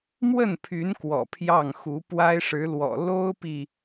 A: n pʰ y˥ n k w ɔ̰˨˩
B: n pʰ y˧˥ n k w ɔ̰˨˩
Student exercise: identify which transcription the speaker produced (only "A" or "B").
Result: B